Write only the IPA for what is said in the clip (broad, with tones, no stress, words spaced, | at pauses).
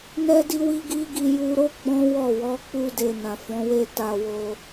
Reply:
nɛ˦di˦wi˦ɡi˦ ɡi˧ju˧ɾo˦ ɡ͡bɔ̃˦wɔ˦˨ wɔ˨˦k͡pu˧de˨ nã˨fɔ̃˨˦we˦ ta˧wo˧